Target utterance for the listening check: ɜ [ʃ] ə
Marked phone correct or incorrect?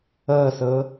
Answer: incorrect